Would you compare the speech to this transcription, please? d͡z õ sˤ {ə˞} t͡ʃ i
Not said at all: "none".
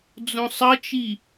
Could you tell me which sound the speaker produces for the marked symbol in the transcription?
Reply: ʌ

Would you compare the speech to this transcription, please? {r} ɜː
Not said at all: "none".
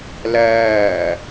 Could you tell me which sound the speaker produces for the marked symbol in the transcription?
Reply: l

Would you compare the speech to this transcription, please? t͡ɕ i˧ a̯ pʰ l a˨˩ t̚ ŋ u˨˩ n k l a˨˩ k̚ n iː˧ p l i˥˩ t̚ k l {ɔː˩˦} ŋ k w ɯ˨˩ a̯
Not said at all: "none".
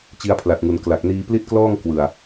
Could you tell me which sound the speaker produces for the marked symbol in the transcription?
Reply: ɔː˥˩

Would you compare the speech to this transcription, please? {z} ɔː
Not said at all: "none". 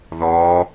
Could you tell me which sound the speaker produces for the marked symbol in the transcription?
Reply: ð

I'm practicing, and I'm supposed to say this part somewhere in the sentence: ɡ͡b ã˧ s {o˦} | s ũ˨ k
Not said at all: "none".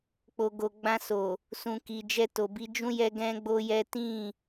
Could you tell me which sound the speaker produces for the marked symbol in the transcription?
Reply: o˨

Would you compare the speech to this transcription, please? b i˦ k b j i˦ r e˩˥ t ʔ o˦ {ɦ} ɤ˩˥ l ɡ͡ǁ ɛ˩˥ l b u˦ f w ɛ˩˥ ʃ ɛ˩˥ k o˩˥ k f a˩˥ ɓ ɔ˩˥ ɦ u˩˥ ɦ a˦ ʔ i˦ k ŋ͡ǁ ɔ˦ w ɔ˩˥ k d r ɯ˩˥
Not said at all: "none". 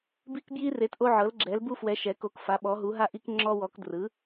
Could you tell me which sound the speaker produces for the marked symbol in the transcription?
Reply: ʕ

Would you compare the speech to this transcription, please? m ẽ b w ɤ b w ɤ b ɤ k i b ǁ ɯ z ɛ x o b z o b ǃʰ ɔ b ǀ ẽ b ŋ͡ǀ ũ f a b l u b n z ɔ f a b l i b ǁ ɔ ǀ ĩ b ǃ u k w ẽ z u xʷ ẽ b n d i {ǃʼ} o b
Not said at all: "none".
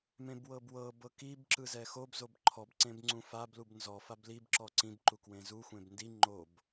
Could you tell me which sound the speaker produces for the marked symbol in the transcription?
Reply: ŋ͡ǃ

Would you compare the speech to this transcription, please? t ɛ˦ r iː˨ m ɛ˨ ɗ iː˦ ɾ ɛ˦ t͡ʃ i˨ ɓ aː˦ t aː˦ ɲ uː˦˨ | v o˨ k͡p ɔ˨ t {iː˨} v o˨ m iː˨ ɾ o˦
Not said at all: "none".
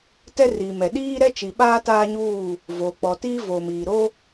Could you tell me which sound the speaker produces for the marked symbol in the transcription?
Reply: iː˦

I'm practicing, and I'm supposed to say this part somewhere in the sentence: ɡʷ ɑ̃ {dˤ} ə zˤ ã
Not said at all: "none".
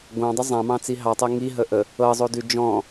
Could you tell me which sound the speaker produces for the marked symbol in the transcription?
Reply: dˤ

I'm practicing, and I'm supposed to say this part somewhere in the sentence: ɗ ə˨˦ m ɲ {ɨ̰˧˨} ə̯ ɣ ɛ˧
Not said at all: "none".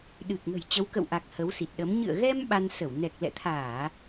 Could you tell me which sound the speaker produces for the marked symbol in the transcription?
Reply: ɨ̰˧˨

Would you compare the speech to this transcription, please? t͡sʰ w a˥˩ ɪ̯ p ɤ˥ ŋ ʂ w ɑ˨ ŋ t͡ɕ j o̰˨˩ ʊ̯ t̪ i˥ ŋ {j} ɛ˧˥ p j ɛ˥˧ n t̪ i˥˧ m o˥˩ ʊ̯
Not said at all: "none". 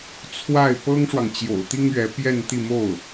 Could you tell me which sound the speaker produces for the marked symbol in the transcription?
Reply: ɥ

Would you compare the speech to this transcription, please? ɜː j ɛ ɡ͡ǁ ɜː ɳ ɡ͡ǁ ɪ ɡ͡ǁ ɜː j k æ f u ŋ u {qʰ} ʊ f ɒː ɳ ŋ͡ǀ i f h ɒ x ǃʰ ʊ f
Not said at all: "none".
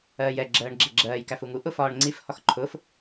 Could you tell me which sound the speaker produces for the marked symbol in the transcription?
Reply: ʔ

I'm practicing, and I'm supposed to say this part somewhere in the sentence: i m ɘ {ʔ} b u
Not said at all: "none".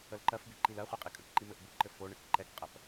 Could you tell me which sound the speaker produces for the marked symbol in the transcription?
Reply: ʔ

